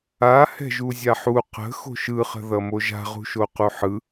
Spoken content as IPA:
a h ɛ̤ ʒ u zʲ a ħ u q ə̤ x o̤ ʃ ɯ χ ə̤ ð ʌ m o ʒ a̤ ʁ ṳ ʃ o q u ħ ɯ

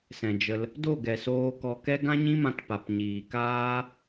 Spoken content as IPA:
s ɛ̃˨ d͡ʒ ə˧ l | d o˦˨ ɡ ɛ˨ s oː˧ k ɔ˧ k ɛ˦ ɡ ã˦ ɲ ĩ˦ m ã˧ t p a˨ p ɲ iː˨ k aː˦

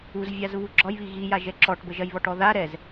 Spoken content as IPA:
u z vʲ a z β u ɡ͡ǁ ɒ j β i ɣ i j a ʒ ɛ ǁ ɔ ʈ b ə ʒ ɐ j β ɔ ʈ ɔ ð a ɾ ɛ z

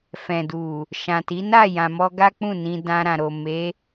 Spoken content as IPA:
f ɛ̃˨ d u˨ | ʃ ã˨ t i˨˦ n a˦˨ j ã˨ m ɔ˧ ɡ a˦ k͡p ũ˦˨ n ĩ˧ d ã˧ ɾ ã˨ ɾ o˨ m e˨˦

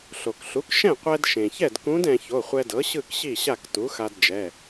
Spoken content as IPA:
ɬ o˩ k ɬ u˩˥ k ʃ ɛ̃˥˩ qʷ ɛ˧ d ʃ ẽ˩ ç ɛ˥˩ d k ũ˧˥ d ɛ̃˧ ç o˩˧˩ χʷ ɛ˧ d ɤ˩˥ ɕ ɯ˥˩ k ɕ i˥˩ ɕ a˥˩ k t u˩˥ x a˧ d d͡ʒ ɛ˩˧˩

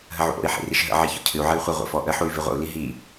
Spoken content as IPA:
ɦ ə ʕ ṵ ʔ o̰ i̯ ħ ḭ r i ʃ ɦ ə̰ ʕ i ç ɔ̰ cʰ ɨ u̯ ʕ ə y̯ χʷ ə ʁʷ ə̰ f ɔ ʔ ə ħ u y̯ v i ʁʷ ə̰ u̯ l i ɦ i

